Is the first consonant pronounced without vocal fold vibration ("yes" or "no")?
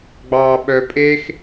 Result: no